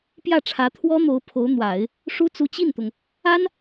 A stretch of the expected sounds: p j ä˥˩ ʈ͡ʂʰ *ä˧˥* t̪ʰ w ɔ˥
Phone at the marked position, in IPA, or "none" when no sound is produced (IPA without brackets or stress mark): ä˧˥